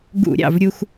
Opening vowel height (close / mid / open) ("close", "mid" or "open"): close